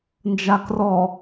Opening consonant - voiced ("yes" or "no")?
yes